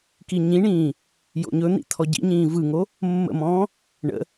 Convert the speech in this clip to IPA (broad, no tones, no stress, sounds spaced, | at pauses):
k i ɲ ĩ ɳ ĩː | j o̰ ɲ ɵ n̪ ḭ t̪ʰ ɔ ɟ ḭ ɲ ĩː v ɯ ŋ o | mː ə̰ m ɔ̃ː | ɳ ə̰